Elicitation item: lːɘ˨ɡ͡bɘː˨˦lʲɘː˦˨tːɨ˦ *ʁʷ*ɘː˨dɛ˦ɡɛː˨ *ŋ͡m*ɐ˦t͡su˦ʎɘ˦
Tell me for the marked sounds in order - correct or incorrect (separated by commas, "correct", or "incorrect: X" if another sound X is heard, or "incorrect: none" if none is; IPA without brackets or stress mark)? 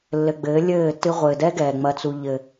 correct, correct